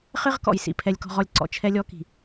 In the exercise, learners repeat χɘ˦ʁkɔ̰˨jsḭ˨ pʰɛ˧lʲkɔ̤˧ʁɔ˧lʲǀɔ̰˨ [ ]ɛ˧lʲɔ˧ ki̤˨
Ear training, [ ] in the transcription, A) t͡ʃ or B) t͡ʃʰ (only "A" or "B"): B